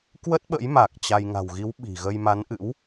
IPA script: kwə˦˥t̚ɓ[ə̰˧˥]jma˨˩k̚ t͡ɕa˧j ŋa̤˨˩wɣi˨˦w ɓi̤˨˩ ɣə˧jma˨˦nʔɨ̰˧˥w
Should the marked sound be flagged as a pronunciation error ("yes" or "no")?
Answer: no